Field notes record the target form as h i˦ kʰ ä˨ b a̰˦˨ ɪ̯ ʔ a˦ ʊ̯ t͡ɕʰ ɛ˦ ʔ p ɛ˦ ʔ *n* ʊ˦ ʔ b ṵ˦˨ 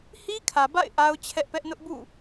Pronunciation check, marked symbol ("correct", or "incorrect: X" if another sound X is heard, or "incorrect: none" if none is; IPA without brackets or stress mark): correct